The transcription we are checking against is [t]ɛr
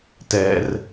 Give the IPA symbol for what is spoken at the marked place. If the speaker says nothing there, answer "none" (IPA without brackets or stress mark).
t